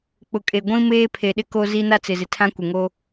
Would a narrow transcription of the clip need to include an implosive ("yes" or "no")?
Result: yes